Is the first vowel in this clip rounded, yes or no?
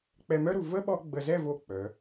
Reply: no